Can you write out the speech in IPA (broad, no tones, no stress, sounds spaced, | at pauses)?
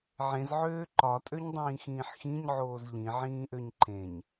ʕ ẽ z ʕ øː ǃ ɒ tʼ ø ɲ dˤ ĩː x ĩː ħ x ĩ ɲ ʕ oː z ʎ ĩ ʕ ĩː ʔ ø ɲ ǃ ẽ ɲ